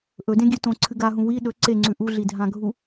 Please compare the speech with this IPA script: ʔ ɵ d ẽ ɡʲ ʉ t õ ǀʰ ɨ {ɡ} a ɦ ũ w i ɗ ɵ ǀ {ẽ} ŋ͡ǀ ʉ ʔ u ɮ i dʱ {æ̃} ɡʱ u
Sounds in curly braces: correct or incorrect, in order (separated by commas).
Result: correct, incorrect, incorrect